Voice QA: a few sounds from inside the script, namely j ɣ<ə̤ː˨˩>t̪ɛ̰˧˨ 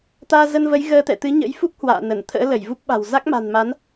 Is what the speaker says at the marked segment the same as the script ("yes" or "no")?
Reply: no